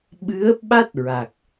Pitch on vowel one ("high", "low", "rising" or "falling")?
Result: rising